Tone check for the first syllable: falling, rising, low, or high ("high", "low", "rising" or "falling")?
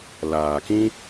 low